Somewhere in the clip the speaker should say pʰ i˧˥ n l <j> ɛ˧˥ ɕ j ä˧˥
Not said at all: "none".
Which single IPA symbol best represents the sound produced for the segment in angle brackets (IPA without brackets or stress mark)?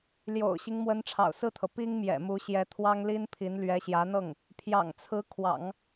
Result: ɥ